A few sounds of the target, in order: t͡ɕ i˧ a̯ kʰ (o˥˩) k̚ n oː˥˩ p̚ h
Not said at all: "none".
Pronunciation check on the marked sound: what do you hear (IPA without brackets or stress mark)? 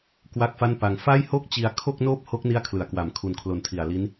o˥˩